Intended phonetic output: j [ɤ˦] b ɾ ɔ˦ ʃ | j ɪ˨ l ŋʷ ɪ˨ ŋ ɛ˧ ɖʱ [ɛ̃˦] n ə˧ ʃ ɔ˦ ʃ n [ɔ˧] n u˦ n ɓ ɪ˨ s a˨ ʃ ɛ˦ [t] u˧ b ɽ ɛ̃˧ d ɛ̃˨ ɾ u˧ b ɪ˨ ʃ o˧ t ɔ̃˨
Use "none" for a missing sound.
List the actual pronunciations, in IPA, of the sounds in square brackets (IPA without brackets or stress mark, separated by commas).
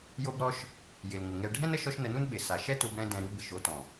o˦, ɛ̃˦, ə˧, t